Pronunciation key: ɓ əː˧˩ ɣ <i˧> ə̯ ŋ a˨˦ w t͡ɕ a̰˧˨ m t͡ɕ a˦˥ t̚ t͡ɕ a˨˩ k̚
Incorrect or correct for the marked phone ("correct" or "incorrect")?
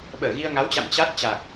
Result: correct